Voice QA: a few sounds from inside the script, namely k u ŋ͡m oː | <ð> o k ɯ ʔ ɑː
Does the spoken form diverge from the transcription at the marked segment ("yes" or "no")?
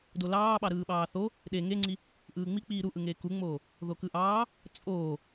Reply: no